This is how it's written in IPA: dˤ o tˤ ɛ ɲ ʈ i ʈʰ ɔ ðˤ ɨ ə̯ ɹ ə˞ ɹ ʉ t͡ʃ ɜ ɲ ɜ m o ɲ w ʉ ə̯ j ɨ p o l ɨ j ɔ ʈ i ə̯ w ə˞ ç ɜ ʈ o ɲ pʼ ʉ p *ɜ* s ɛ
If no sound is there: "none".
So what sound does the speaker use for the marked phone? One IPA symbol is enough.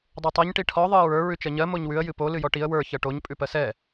ɜ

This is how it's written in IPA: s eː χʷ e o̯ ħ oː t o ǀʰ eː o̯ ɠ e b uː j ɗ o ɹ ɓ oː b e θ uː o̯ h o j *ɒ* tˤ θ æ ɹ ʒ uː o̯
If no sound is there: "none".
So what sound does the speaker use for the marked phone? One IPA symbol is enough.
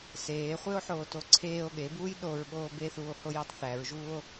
ɒ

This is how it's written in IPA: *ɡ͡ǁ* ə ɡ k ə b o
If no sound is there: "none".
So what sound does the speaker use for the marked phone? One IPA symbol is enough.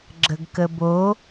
ɡ͡ǁ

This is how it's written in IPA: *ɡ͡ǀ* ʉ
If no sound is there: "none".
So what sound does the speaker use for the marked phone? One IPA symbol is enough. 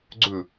ɡ͡ǀ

